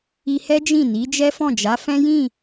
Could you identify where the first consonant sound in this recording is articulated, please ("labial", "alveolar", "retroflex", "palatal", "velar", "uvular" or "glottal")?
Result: glottal